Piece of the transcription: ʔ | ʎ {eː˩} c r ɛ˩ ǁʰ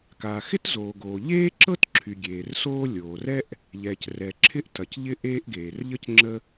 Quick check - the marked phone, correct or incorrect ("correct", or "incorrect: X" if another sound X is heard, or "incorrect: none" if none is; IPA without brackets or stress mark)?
incorrect: ɛː˩